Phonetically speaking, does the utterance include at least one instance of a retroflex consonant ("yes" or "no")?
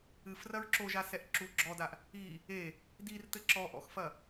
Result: no